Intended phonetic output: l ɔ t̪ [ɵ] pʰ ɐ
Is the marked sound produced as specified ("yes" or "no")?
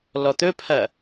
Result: yes